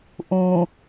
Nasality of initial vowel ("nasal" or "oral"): nasal